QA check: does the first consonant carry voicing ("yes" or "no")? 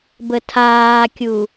yes